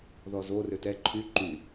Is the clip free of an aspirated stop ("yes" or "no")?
no